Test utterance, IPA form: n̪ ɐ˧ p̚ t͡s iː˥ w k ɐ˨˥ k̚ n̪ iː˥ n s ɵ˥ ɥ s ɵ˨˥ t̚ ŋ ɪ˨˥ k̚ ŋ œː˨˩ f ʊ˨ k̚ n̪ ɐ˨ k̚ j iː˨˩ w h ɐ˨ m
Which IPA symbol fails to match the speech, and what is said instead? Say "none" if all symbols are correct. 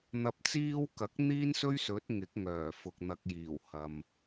none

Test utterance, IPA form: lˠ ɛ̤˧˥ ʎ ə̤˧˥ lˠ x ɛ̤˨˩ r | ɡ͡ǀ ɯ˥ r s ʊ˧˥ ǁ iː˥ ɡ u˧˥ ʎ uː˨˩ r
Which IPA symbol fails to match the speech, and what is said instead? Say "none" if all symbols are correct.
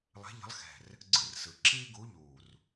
ʊ˧˥ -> ɯ˧˥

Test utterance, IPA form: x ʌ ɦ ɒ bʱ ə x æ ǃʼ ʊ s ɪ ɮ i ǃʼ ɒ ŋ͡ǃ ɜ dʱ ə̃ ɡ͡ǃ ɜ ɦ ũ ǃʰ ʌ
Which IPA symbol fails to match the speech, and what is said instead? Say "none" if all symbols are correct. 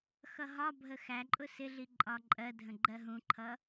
ŋ͡ǃ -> ǃʼ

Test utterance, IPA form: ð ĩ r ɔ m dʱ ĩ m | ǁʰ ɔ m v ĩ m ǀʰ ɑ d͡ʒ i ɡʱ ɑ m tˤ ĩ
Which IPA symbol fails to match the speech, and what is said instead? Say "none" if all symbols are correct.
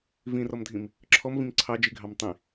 ð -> v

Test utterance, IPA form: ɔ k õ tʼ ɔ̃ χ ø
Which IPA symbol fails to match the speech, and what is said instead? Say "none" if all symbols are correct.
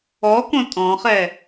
ø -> ɛ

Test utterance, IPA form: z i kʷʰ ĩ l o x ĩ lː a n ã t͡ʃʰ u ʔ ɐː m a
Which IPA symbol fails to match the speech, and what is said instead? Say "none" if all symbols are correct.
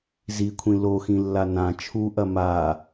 ɐː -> ɐ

